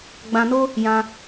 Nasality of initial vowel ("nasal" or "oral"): nasal